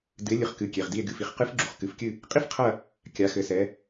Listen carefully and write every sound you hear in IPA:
d ɨ˩˥ e̯ lʲ ɨ˩˧ χ k ɨ˩˧˩ kʲ e˩˧˩ ʁ d i˦˨ e̯ ɡ ɨ˩˧˩ f i˩˧ χ q ɨ˧˥ f ɡ͡ǁ u˩˧˩ χ k ɨ˩˧˩ f kʲ ɨ˦˨ | qʼ i˥ f qʰ ɐ˦˨ | kʲ a˩˧ x ɘ˩˧ s ɛ˩˧

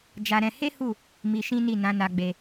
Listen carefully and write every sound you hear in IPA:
d͡ʒ a˧ ɾ ɛ̃˧ h e˦ h u˦˨ | m i˧ ʃ ĩ˦ n i˦˨ n ã˨˦ n a˧ ɡ͡b e˧

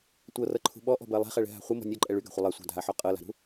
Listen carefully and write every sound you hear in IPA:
tʷ ɤ r ɤ ǃʰ ṳ ɓ ɔ ʔ ɔ̤ b ɜ lˠ ɛ̤ χ ɛ ɭ ɛ̤ ɦ a̤ χʷ ɤ m ɔ̤ nʲ ɔ ǃʼ ɛ ɭ y ɡ a̤ χʷ ə lˠ ɜ sʷ a̤ dʱ a ħ ɔ qʼ ɤ l a̤ ɾ ṳ

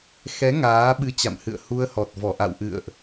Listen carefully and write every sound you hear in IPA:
x ɛ˨˦ ŋ aː˨˦ ɓ ɨ˧ t͡ɕ a̰˧˨ m h ɨ̰˧˨ ə̯ h u˧ ə̯ h ɔ˨˩ t̚ v ɔ˧˩ ʔ a̰˧˨ w ʔ ɨ̰˧˨ ə̯ ʔ

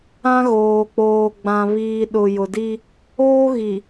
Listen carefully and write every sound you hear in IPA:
ã˦ ɣ oː˨ k͡p oː˨ ɡ͡b ã˨ β iː˨ ɗ ʊ˨ j ʊ˨ d i˦ | oː˦ ɣ i˨

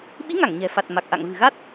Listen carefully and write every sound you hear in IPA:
ɓ i˨˦ ŋ a˧˩ ŋ ɲ ɛ̤˨˩ f a˨˩ t̚ m a˨˩ k̚ ʔ a̰˧˨ ŋ v ɨ̤˨˩ ɣ a˦˥ t̚

